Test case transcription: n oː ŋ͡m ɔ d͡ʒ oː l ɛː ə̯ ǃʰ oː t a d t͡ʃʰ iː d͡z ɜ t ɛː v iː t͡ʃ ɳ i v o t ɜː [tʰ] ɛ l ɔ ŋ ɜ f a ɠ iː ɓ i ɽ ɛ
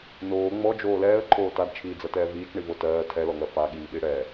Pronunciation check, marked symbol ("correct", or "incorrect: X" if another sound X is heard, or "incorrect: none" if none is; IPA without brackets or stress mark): correct